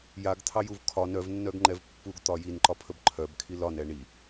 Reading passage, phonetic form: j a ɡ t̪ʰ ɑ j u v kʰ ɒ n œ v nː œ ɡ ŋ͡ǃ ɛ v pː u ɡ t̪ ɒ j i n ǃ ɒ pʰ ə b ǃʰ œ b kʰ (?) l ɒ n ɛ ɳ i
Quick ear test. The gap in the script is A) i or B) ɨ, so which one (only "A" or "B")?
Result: A